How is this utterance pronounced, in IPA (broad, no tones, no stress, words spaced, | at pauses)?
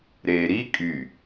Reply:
ɾeːɾi kʼy